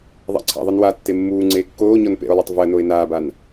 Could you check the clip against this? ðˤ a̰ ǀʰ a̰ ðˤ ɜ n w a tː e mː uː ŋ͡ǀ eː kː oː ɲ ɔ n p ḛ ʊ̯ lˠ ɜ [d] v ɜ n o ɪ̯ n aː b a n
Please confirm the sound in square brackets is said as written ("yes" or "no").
no